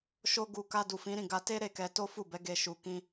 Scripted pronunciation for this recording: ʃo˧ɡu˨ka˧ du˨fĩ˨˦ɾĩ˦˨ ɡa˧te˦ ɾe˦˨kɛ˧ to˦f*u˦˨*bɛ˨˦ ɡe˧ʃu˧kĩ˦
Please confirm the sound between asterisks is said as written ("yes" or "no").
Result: yes